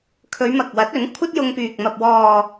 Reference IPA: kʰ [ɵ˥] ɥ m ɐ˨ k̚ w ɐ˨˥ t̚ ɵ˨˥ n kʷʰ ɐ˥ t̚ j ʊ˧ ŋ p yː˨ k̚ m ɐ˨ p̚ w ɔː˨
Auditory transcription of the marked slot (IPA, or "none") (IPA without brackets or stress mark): ɵ˨˧